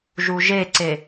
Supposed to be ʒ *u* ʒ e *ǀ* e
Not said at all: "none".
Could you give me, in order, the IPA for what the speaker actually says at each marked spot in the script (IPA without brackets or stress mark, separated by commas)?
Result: u, ǀ